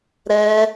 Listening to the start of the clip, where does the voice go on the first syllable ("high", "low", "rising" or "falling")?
high